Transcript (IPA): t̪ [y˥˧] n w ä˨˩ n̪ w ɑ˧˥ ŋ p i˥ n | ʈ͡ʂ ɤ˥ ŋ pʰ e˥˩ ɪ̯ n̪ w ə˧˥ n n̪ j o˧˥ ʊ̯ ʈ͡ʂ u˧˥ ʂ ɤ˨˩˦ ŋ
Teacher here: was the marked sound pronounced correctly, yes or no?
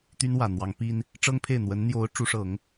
no